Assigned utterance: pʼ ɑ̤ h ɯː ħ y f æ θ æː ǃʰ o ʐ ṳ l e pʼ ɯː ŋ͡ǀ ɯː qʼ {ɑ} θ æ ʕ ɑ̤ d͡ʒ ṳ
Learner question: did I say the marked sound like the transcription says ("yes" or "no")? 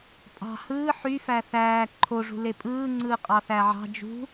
yes